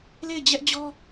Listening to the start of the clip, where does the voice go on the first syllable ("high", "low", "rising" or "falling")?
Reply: falling